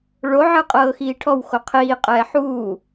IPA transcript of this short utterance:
ɭ o ʕ ɯ qʼ ɤː x iː ʈʰ ɔ w x o qʰ iː qʼ ɛː ħ uː

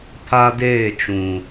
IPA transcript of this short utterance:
pʰ a˦ d eː˦˨ t͡ʃ ũ˨

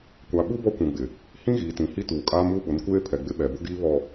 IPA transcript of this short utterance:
kʷ a˨ ɓ u˦ b ɔ˦ kʷ ũ˨ ɡ͡b ɪ˨ | h ĩ˦ ɣ iː˨ t ĩ˨ h i˦ t uː˨ kʼ aː˦ m uː˦ ɓ ʊ˨˦ n kʷ eː˦ pʰ ɛ˨ ɡ͡b ɪ˦ ɓ ɛ˨ b ʊ˦ ɡ iː˦ β ɔ˨

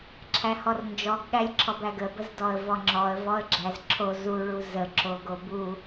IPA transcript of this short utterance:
ǁʰ æ h ɔ r n d͡ʒ ɔ ɡ ɠ æ lʲ ǁʰ ɔ b æ ɡ ə b ə z d ɔ ə̯ v ɔ ŋ͡ǁ ɔ ə̯ v ɔ ə̯ ɡ͡ǁ æ z ǁʰ o z u ɭ u z ə ǁ o ɡ o b u

